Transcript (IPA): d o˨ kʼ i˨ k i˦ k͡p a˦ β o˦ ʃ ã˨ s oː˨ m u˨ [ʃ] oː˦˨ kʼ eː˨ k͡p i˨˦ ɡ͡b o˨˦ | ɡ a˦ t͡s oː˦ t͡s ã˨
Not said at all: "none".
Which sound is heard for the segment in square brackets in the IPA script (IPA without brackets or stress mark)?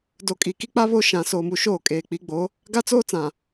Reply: ʃ